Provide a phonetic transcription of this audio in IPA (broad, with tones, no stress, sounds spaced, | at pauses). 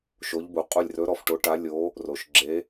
ʃ o˧˥ ʎ b u˩˥ qʼ u˦˨ lʲ r ɵ˧˥ ɾ ɔ˩˥ f ʈ o˧˥ ʈ a˧˥ lʲ o˧˥ | r o˨ ʃ ɡ͡ǁ e˧˥